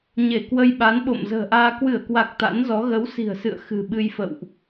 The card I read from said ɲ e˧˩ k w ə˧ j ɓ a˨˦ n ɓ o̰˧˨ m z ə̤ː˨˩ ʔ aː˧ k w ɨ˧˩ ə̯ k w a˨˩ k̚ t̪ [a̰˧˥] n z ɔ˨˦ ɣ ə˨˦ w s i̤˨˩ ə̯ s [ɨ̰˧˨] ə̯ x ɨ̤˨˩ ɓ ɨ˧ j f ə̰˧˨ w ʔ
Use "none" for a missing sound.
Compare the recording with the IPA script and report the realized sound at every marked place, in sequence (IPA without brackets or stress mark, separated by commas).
a̰˧˥, ɨ̰˧˨